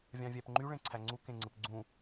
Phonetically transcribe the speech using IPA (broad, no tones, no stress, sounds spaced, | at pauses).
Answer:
vʲ ɑ̃ vʲ æ p ŋ͡ǃ y ɭ ẽ ǀʰ æ ŋ͡ǀ u k ẽ ŋ͡ǀ ɯ p ɡ͡ǀ ũ